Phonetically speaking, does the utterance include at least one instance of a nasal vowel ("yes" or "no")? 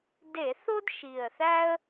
no